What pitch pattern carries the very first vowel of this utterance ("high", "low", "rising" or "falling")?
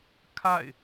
falling